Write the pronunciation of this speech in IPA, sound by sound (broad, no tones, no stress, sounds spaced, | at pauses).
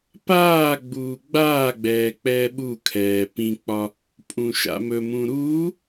p aː ɡ͡b uː ɡ͡b aː ɡ͡b ɛː k͡p ɛː ɓ u kʰ ɛː p ĩ k͡p ɒ | pʼ ũ ʃ a̰ m ɵ m ũ ɾ uː